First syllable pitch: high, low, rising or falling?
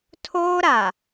high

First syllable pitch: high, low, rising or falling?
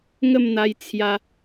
falling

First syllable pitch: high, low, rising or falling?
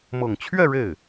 low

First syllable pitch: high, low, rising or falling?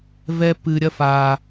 high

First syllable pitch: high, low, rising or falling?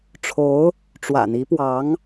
rising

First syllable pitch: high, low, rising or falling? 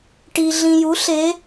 low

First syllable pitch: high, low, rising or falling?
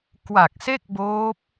low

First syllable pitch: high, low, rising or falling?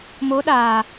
rising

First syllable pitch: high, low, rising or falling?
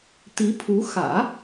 rising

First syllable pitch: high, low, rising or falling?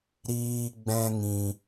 high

